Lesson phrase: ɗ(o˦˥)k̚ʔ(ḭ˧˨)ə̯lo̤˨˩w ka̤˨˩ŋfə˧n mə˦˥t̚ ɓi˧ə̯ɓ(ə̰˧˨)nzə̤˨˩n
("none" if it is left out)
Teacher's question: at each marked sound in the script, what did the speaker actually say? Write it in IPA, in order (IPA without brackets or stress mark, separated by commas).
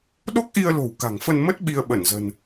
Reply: o˦˥, i˧, ə˧˩